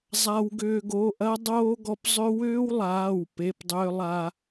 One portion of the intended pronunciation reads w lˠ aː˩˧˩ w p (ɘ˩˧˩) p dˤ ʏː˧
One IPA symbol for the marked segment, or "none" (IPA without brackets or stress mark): e˩˧˩